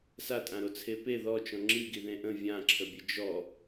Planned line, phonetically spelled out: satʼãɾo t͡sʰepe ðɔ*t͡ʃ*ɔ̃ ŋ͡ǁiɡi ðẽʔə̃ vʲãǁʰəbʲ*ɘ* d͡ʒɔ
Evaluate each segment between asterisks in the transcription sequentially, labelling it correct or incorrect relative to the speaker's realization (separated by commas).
correct, correct